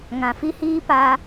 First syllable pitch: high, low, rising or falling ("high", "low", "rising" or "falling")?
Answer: low